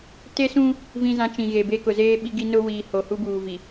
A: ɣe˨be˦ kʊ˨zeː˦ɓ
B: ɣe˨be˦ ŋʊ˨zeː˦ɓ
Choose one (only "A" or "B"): A